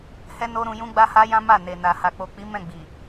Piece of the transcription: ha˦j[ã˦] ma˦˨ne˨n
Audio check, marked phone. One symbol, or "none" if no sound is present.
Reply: ã˦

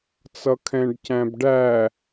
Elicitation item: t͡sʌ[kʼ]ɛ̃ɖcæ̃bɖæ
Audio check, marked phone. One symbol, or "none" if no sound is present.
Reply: kʰ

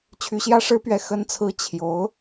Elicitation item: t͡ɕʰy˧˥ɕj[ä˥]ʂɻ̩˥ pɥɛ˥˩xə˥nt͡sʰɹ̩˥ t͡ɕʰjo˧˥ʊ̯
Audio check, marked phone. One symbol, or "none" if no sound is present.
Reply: ä˥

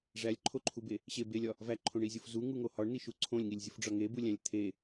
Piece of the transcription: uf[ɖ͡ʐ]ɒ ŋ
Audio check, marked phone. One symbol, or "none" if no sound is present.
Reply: ɖ͡ʐ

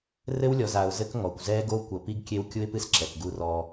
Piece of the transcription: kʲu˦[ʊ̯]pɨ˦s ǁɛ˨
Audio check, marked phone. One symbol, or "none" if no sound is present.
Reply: ɪ̯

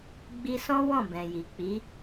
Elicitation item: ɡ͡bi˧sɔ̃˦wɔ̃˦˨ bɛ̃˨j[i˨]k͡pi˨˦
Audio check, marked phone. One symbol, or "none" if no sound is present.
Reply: i˨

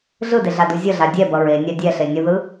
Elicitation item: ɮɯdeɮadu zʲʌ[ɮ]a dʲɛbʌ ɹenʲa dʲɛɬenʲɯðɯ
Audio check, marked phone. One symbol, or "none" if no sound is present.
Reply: ɮ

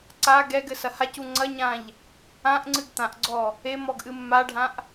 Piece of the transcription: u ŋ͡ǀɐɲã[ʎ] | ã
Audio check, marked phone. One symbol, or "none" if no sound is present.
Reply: ʎ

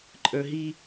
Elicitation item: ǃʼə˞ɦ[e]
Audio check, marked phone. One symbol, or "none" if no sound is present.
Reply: i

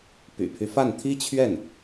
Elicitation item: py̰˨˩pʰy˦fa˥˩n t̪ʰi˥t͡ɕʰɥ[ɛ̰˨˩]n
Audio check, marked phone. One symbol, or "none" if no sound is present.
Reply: ɛ˥˩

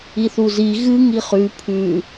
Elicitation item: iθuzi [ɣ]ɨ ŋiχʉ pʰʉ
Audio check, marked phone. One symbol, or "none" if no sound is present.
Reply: ɣ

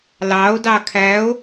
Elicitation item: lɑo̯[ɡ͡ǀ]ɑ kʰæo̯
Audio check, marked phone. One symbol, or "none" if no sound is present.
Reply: d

